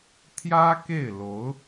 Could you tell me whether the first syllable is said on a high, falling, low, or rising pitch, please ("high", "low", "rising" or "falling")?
high